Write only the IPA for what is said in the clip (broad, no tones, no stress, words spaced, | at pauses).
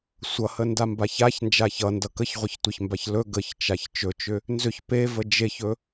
sʷʌhə ndambaçaçnd͡ʒa çʌndʌ kəçʁʷʌç tʷəçmbaç lɵ ɡəçt͡ʃaç t͡ʃɵt͡ʃʏ | nzʏç pevə d͡ʒeçɵ